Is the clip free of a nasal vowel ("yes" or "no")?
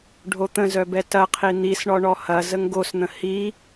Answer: no